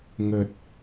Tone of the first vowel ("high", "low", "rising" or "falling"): low